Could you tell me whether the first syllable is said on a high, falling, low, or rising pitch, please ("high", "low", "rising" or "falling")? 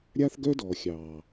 high